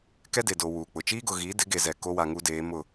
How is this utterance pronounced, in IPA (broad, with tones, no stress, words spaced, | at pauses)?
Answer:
kɛ˦de˨do˨ wuː˨k͡pʊ˨ t͡ʃiː˦ɡʊ˨ɣiː˨˦ dɪ˨˦ɡe˨zɛ˨ ko˦wa˨ŋu˦deː˨˦ mʊ˦˨